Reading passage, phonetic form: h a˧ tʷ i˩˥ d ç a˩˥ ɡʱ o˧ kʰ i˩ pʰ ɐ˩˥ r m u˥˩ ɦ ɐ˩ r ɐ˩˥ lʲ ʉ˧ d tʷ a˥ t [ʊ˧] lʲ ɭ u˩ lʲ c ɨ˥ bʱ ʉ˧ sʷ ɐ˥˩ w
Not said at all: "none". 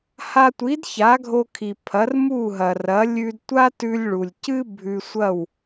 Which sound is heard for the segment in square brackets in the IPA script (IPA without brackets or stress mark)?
ʉ˧